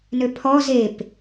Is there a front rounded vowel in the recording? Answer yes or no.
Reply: yes